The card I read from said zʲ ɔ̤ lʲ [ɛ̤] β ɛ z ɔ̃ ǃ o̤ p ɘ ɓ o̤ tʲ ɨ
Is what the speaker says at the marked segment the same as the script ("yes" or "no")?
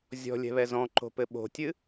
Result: yes